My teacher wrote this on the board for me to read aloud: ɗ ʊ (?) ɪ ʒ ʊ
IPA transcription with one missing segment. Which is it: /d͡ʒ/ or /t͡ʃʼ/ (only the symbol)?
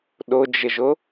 d͡ʒ